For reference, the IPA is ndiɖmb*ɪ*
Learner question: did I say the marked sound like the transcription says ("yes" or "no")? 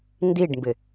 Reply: yes